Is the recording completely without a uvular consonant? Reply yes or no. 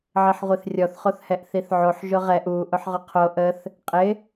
no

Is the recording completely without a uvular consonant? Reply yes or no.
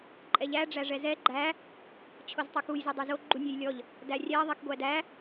yes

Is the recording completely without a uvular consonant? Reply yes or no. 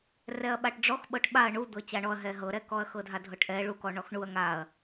yes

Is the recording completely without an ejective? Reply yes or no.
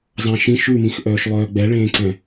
yes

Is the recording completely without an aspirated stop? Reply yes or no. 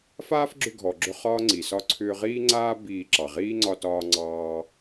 no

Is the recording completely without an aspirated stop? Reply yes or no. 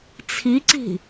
no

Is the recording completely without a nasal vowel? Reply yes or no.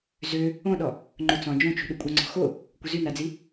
no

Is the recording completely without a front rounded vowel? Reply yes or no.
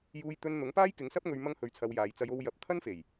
yes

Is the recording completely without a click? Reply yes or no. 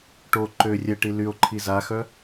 no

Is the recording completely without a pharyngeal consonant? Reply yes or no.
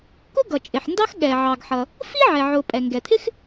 no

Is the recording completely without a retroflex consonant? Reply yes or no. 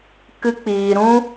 yes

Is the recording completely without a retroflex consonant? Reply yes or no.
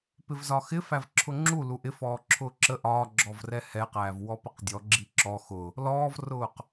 yes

